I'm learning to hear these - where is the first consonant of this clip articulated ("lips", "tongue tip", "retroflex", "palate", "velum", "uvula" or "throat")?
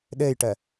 tongue tip